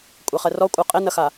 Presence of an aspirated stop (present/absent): absent